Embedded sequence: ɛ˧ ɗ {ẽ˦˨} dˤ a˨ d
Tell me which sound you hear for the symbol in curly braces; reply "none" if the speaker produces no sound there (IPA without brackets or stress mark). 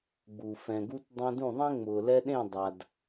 ẽ˦˨